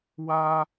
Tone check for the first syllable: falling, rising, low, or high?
high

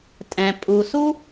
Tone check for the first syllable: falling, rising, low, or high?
low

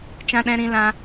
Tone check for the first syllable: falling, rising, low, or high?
high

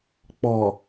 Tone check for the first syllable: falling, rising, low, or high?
low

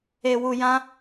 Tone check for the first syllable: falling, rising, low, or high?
low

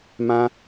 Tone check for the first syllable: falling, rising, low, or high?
high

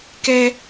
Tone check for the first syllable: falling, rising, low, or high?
high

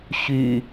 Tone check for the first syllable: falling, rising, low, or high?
low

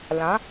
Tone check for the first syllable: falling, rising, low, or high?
rising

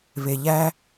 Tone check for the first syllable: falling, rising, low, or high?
low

